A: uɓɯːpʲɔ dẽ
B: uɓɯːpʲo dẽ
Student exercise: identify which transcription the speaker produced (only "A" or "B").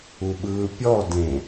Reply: A